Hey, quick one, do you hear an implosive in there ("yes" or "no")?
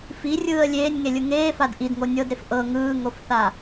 no